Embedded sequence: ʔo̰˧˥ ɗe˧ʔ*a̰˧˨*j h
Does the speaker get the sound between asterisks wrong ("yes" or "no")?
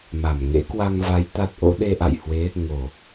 no